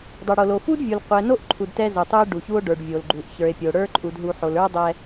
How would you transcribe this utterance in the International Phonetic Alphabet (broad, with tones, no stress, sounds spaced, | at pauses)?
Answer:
dˤ o˨ ɽ o˨ l o˨ f u˦ d vʲ u˨ l qʷ ɛ˨ n o˦ ʔ ǃʰ u˨ d t ɛ˦ z o˨ tˤ u˦ e̯ ɖ u˨ ç u˦ o̯ ɖ ə˞˨ ɖ vʲ o˨ l ɡ͡ǃ u˨ ʔ ç ə˞˨ e̯ pʲ o˨ ɽ ə˞˦ ǃʼ u˨ d ɦ u˨ ħ o˨ l ə˞˦ dˤ ɛ˦